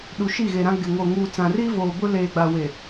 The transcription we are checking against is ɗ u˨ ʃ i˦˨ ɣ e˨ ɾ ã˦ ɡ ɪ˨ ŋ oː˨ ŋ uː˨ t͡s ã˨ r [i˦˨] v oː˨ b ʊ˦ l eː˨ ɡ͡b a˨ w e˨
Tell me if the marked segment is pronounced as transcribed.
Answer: no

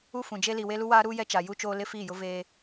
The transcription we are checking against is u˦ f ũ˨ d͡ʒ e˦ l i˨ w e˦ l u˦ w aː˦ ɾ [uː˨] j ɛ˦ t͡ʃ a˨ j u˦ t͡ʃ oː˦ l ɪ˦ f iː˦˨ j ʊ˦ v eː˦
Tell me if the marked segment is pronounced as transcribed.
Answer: no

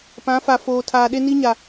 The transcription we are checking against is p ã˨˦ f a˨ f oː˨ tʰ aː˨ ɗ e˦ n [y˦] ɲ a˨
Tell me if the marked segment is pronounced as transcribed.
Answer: no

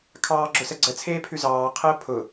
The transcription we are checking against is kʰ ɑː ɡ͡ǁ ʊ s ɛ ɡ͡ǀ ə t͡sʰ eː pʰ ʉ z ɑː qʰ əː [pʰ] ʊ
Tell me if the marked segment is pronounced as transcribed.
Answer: yes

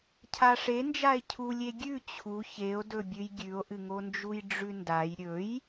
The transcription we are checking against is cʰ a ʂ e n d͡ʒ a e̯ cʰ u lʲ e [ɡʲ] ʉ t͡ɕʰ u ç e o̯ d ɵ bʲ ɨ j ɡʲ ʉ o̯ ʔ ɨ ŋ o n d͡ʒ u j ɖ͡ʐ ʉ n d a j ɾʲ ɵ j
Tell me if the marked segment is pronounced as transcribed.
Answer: yes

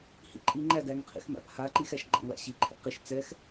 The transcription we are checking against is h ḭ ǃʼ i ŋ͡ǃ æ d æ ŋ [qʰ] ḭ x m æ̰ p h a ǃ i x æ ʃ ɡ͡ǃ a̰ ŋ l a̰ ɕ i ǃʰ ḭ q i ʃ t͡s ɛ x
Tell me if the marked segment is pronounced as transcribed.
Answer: yes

